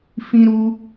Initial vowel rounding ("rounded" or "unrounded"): unrounded